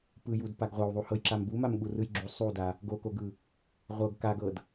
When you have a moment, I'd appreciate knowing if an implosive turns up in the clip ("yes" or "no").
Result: yes